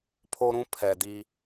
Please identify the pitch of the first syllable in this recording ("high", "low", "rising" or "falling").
high